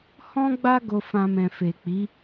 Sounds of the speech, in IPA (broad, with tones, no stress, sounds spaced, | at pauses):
h ɔ̃˦ ɡ͡b a˦ ɡ o˧ f ã˧ m ɛ̃˨ f e˨ k͡p i˨˦